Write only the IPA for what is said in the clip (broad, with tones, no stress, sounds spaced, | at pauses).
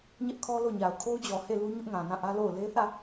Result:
ɲ ɛ˦ ʔ kʰ ɔ˦ l o˦˨ ɲ a˨ ʊ̯ kʰ o˦ ʊ̯ d͡ʑ ɔ˨ h e˦˨ l u˦ ɲ ʊ˦ ʔ ŋ ã˨ n ã˦˨ ʔ ä˦ l o˦˨ ʊ̯ l e˦ θ ä˦˨